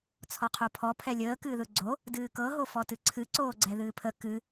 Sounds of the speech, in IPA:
t͡sʰ ɔ qʰ o pʰ ɔ pʰ ɛ lʲ əː k ɨː ð ɯ ɡ͡ǀ o | d ɨː k ɤ ɦ o f ɔ t ɨ ǀʰ ɨ ǀ oː ɡ͡ǀ ɛ ð ɨː pʰ ə k ɨ

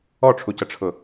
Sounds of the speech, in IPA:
ɔ ʈ͡ʂʰ u c ə ʈ͡ʂʰ ʊ

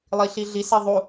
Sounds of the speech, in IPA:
lˠ i ɬ i ɮ i s e ðˤ u

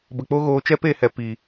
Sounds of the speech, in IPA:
b ə˨ k͡p o˦ ɣ oː˧ t͡ʃ ɛ˦ p e˦˨ h ɛ˨ p i˨

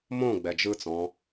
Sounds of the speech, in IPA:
m õ ɡ͡b ɛ d͡ʒ ɯ t͡s ɔ̃

